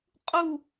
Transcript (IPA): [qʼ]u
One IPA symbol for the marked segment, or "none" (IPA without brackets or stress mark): qʼ